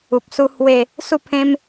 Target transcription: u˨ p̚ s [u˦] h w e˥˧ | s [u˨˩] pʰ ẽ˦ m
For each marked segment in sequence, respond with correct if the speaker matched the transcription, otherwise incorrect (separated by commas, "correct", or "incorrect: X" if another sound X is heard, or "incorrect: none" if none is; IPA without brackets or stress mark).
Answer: correct, incorrect: u˥˧